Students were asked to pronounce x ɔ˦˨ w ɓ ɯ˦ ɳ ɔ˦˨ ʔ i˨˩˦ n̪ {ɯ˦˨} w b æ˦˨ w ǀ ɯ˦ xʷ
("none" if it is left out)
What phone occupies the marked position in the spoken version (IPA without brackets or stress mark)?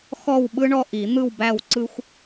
ɯ˦˨